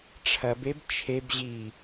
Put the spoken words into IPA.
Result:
ʈ͡ʂʰ ɐ b e b t͡ʃʰ e b ʑ i

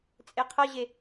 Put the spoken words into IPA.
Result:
t͡sʼ e qʰ ʌ ʑ e

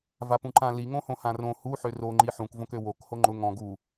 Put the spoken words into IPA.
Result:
v a p ũ ǃ ã l i ŋ õ h õ h ã r õ h u ħ ø r o ŋ͡ǃ i ħ ũ k v õ k ø w o k h o ŋ͡ǃ ʊ ŋ ɔ̃ ɡ u

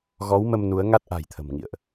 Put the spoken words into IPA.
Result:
ɣ ɔ˨˦ w m ə˧ m n u˨˦ ə̯ ŋ a˦˥ t̚ ʔ a̤˨˩ j t̪ʰ ə̤˨˩ m ŋ ḭ˧˨ ə̯ ʔ

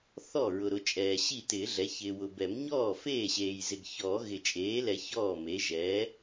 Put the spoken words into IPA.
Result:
θ ɔ˥˩ ɹ ʊ˨ ɾ ʊ˩˥ t͡ʃʼ ɛː˨ ɕ i˥˩ t ɪː˨˩˦ ɮ ɛ˩˥ ç ɪː˨ w ʊ˨ b ɛ˨˩˦ m ɲ ɔː˥˩ f eː˥˩ ɕ eː˨ j z ɪ˨ ɡ ç ɔː˨˩˦ ɣ ɪ˨˩˦ t͡ʃʼ eː˩˥ l ɛ˨˩˦ ç ɔː˥˩ m e˩˥ ʒ ɛː˩˥

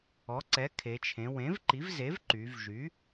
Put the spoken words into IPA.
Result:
ɔ˩˥ ǀ ɛ˩˥ kʰ e˩˧ t͡ʃʰ ẽ˩˧ w ẽ˩˥ v ǃ i˩˥ v z e˩˥ v ǃ y˩˧ v ʒ y˩˥

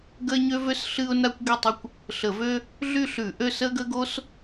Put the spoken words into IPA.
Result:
ɡ ə˥ ɪ̯ ɲ ø˥ v ø˥ s ɬ ɨ˥ ʊ̯ n a˥ kʷ ɡ ø˥˨ tˤ ə˥ kʷ | ɬ ə˧˩˧ v ø˥ | ɮ y˥˨ ɬ ʉ˧˩˧ ʔ ø˥˨ s ə˥ ɡ ə˥ ɡ o˥ s

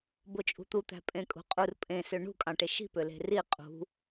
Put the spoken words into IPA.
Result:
b o t͡ʃʼ ṳ t̪ u t̪ æ̤ pʼ ẽ kʼ ṳ qʼ u r pʼ ẽ s ø ɳ ṳ kʼ ɑ̃ ʈ e ʃ i̤ p ø l e̤ r i qʼ ṳ

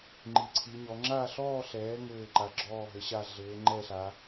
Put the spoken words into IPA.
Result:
ŋ͡ǃ i˨˦ ǀʰ i˨˦ ɲ ɔ˨˦ ŋ͡ǁ a˥˧ ɬ ɔː˥˧ ɬ ɛː˨˦ ŋ ɘː˥˧ ǃ a˨˦ ɡ͡ǁ ɔː˥˧ ɦ ɘ˨˦ ɕ a˥˧ ɮ ɘː˨˦ ŋ͡ǃ ɛ˥˧ ɬ a˨˦

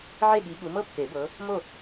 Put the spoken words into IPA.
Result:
ʕ e˥˨ ɠ i˨˦ ɠ u˨˦ m ɤ˥ pː e˨˩˦ b ɤ˨˦ | m o˥˨

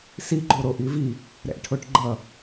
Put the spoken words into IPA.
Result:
s i ɡ͡ǃ o ɾ o ʔ i v i | ɾ ɛ̰ ʈʰ o ʈ ɡ͡ǃ ʌ

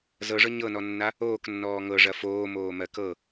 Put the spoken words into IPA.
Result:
z ɤ ʐ ɤ ɲ ɤ n ɔ nː a | oː k nː ɔː ŋ ɤ ʐ ɐ f oː m oː m ɜ k ɤ

